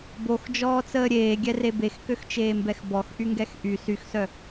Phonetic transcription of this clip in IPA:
boxd͡ʒɔːt͡səː ɾʲeːɡʲɛre bexkøxt͡ʃeːmbɛx bɔxʔyŋɡɛx ʔy syxsœ

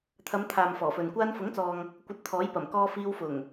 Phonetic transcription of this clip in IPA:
t̪ʰɐ˨˧mt̪ʰaː˨m fɔː˨˩fɵ˨n kʷaː˧nfʊ˨˥ŋt͡sɔː˨ŋ | kʷɐ˧t̚t̪ʰɔː˨˥jpɐ˨˩m kɔː˧ fiː˧wfʊ˨˩ŋ

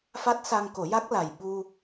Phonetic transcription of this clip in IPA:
fa˦˥t̚sa˧ŋko˨˩˦ja˦˥k̚ la˨˩jɓu˧

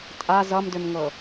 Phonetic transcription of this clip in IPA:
tʼa zʌmdʏmŋɤ

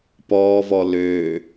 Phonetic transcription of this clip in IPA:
pɔːvɔ løː

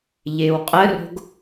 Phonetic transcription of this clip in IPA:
ʎɪːwqʼəro̤ɡ

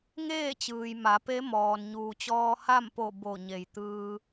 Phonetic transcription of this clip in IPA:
ŋeː˥˨t͡ɕɯː˩j ma˩˧pe˧˥mɔː˩n ɲuː˩t͡ɕɔː˧ ha˥˨mpo˧˩ bo˧˩ɲe˩jt̪ɯː˧

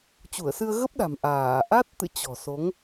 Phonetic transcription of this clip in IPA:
t͡ɕu˧˩ə̯sɨ˧ə̯ɣə˦˥p̚ɗa̤˨˩m ʔaː˧˩ ʔa˦˥t̚t̪ɨ̰˧˨ t͡ɕɔ̤˨˩so˨˦ŋ

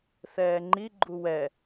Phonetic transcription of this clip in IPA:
θɛːŋ͡ǃi ɡ͡ǃuwɛ

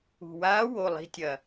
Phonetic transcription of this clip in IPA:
ṳ˩waː˧˥ wo˩˧˩lˠi̤˧˥tʲɐ˩

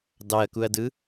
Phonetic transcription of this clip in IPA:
dɑɐ̯kuɐ̯dɯ

